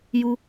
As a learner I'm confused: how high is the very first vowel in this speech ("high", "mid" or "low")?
high